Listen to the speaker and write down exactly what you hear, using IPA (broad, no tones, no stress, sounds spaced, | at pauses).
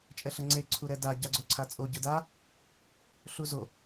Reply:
t͡ʃʼ ɛ ɬ ʌ ŋ͡ǀ e ǀʰ u ɾ ɛ d a ɟ a ɡ͡ǀ o ǀʰ a t͡sʼ o ɟ ɯ d a | ɬ u z o